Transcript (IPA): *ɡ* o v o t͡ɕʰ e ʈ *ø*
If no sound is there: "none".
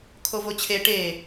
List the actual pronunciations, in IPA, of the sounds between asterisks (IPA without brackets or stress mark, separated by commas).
kʰ, e